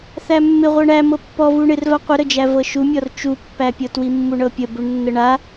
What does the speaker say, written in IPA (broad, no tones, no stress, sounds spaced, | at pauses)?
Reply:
θ æ mː ɪ ʁʷ ɤ ɳ æ m ɤ pː ɔ v u ɳ ɪ r v a qʷ ɪ ɾ ə d͡ʒ æ v ɤ ʃ u mʲ ɔ r t͡ʃ u pː æ pʲ ɤ t w i mː u ɳ ɤ pʲ ə b u ɳ nː ə ɳ a